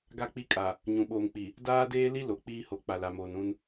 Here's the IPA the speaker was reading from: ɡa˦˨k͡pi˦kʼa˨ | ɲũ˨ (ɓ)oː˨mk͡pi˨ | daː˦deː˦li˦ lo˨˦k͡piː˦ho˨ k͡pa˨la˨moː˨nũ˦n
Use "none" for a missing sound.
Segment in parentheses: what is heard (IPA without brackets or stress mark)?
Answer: ɓ